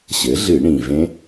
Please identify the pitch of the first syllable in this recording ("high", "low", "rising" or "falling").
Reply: rising